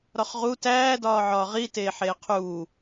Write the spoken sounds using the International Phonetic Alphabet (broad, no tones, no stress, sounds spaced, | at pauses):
ɾ ɒ χ ʁ u t æː d ɒː ʕ ɒː ʁ i t eː ħ eː qʰ uː